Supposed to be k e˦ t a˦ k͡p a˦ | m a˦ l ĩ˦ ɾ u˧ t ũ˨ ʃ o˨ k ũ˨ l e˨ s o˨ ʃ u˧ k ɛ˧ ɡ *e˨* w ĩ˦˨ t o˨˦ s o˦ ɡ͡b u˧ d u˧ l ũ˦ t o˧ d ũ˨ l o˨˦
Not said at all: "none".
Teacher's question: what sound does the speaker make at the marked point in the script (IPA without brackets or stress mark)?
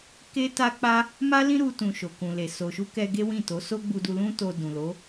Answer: e˦